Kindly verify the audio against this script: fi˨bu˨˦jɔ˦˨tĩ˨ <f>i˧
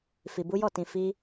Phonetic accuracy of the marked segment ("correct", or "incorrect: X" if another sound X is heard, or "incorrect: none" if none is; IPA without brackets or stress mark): correct